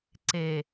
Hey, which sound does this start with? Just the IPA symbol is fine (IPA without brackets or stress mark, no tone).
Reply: ǀ